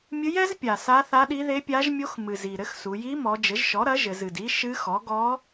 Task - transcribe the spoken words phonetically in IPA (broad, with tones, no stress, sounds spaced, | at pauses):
mʲ ɨ˧˥ j ɛ˧˥ z pʲ a˨˩ s a˧˥ θ a˧˥ ɗ i˧˥ ð e˧˥ pʲ a˧˥ ʒ mʲ o˧˥ x m ɨ˨˩ z i˨˩ ɾ ɘ˧˥ x s u˩˧ j i˧˥ m ɔ˩˧ d͡ʒ ɘ˩˥ ʒ ʃ ɔ˩˥ ɾ ɐ˩˥ ʒ ɘ˩˧ z ɨ˨˩ d i˧˥ ʃ ɨ˧˥ x ɔ˩˥ ɡ ɔ˧˥